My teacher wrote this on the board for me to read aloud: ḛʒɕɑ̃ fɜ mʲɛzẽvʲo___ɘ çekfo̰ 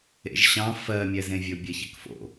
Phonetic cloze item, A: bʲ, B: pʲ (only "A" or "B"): A